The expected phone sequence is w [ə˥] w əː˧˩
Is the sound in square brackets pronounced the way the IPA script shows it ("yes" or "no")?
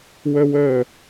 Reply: no